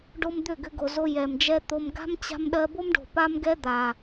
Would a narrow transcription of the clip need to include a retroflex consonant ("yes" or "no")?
yes